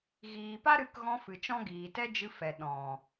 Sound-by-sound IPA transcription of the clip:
ɣ iː˨ p a˦ ɾ ɨ˨˦ k ɣ ɔ̃˧ f ɨ˨ t͡ʃ ɔ̃˦ ɡ iː˨ t ɛ˦ d͡ʒ ɨ˧ f ɛ˨ ɗ ɔ̃˨

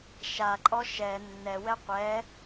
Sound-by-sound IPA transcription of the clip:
ʃ a ǃʼ ɔ ʃ ɛ nː ɛ w ɛ qʷ ɛ

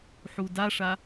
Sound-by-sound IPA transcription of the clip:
ħ u d a ʂ a

